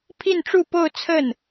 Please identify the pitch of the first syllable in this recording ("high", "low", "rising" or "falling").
falling